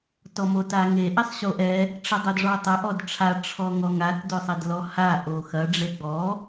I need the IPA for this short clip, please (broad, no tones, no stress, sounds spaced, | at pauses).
t ɔ m o t a ŋ e ʔ ɛ sˤ ɕ o ʔ ɛ | ʈ͡ʂ ɐ dˤ o d ʐ ɔ tˤ ɐ ʔ ɔ d ʈ͡ʂʰ a ʈ͡ʂʰ ɔ ŋ ɔ ŋ a t d o sˤ ɛ d l ɔ h a ʔ o x ɐ ɖ͡ʐ e ɡ͡b ɔ